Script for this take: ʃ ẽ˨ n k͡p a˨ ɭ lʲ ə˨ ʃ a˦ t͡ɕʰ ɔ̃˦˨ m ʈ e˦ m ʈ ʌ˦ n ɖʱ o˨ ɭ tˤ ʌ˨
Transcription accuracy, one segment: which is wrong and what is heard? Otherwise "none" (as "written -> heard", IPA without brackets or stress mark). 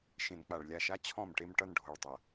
ə˨ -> a˨